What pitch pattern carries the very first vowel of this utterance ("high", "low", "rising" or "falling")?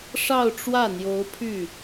falling